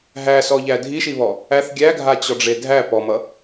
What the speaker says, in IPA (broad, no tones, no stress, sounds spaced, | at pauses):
ɦ æ s ɔ ʎ æ dʱ i ʃ i β ɔ | æ θ ɡʲ æ ɡʱ a t͡ɕ ɔ ɖ͡ʐ e dʱ æ p ɔ m ʌ